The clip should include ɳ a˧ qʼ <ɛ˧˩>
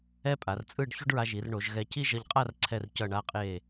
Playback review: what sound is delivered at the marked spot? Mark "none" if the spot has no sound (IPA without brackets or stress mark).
e˧˩